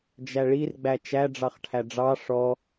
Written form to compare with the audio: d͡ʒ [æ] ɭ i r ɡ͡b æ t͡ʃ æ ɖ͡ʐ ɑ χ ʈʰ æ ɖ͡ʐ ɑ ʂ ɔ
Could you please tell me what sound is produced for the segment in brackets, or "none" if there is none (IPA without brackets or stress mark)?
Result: æ